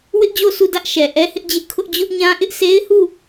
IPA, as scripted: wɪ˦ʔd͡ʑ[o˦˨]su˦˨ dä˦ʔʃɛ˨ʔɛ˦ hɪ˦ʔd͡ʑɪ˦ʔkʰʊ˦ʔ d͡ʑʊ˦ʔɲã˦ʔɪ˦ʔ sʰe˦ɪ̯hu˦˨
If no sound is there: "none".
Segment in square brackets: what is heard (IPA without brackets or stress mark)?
o˦˨